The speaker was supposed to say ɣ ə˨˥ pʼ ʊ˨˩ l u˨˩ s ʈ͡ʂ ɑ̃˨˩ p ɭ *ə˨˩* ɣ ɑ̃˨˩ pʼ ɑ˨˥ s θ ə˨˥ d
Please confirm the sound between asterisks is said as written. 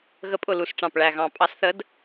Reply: no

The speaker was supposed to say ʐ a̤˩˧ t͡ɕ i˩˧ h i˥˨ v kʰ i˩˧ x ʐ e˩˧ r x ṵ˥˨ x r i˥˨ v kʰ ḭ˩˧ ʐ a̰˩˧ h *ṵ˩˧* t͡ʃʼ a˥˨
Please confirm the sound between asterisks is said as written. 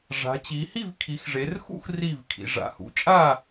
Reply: yes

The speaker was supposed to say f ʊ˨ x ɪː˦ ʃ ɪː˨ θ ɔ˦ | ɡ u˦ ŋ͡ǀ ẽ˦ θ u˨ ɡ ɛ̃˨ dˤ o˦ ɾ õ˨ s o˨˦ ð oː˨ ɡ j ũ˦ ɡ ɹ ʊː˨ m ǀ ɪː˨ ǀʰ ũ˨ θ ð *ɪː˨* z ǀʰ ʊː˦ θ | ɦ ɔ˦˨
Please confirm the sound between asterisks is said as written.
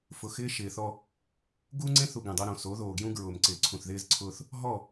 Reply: no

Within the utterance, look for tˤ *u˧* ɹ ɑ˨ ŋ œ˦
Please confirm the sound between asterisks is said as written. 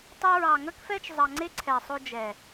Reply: no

